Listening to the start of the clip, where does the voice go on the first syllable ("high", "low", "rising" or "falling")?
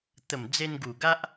low